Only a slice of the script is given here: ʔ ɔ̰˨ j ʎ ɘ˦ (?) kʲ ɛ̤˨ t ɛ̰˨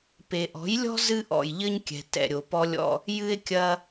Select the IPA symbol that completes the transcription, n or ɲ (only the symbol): ɲ